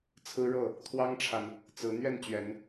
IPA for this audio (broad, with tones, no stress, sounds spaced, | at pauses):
t͡sʰ ɹ̩˦ ɻ ɤ˥˨ | t̪ʰ w ɑ˦ ŋ ʈ͡ʂʰ a˨ n | t͡s ɹ̩˨˦ n̪ ɥ ɛ˥˨ n t͡ɕ ɥ ɛ˨˦ n